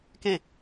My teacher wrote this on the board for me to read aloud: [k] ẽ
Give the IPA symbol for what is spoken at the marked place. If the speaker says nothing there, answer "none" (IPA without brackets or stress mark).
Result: k